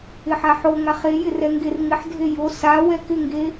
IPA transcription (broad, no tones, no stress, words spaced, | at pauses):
ɪħaħoŋa χejɪ rɛŋɡerŋɪħdʱe jo sa wɛkɪŋɡe